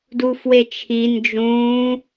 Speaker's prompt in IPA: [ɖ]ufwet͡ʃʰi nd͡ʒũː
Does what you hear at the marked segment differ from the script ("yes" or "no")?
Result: yes